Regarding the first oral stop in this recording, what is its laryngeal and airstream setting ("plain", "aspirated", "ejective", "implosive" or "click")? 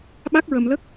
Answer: implosive